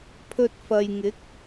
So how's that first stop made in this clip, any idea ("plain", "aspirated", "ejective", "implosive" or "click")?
aspirated